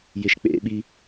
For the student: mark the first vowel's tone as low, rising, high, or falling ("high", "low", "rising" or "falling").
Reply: high